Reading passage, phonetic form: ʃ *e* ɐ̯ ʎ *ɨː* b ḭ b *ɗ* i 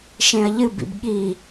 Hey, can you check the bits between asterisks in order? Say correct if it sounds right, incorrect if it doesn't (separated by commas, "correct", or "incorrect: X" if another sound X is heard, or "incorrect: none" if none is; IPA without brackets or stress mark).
incorrect: ẽ, incorrect: ɨ, incorrect: ɠ